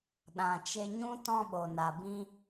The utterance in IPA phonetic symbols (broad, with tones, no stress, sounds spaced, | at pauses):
ɗ ã˨ t͡ʃ e˧ ɲ ũ˦ t ɔ̃˦ ɓ o˨ n a˨ b ĩ˦